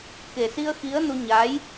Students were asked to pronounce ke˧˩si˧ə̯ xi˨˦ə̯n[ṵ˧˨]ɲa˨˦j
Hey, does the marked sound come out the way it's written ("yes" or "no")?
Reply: no